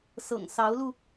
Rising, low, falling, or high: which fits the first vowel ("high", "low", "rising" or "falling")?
low